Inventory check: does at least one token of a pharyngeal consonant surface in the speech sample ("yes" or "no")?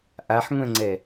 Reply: yes